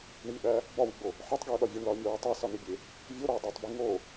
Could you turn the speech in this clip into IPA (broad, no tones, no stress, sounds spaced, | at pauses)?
ɳ i ɓ æ | b ɒ w i ɡ͡b o | ħ ɒ tˤ ɡ i ʊ̯ ɗ ɒ vʲ o ɳ l ɒ ə̯ mʲ ɒ w i tˤ æ s ɒ n e bʲ e | vʲ o ɾ ɒ ə̯ dˤ e tˤ b i ŋ o